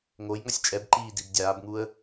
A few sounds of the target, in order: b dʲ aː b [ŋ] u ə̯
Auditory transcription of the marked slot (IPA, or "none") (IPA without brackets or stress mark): ŋ